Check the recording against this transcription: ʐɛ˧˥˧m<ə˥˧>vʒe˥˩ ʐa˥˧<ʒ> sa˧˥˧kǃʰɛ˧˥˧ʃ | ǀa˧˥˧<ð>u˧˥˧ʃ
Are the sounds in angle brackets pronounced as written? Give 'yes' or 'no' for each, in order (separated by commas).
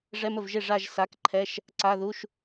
no, yes, yes